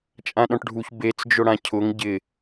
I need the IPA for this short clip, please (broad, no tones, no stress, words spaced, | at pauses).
t͡ʃʼãɗɔ̃ʈɖʱuç bet͡sd͡ʒʊɽã cʰʊŋ ɟɪ